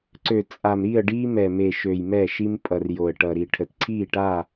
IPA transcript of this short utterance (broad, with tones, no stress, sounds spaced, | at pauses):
ǀ ø˨ t͡sʼ a˨ m ɾ i˦˨ ə̯ ɖ iː˦ m ɛ˨ m e˨ ʃ ø˨ j m ɛ˦˨ ʃ i˦ m pʼ ʌ˨ r j o˨ ə̯ ʈ ʌ˨ ɾ i˨ ʈʰ ə˨ t ǀʰ iː˦˨ ʈ a˦˨